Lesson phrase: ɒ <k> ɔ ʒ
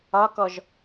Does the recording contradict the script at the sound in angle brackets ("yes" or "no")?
no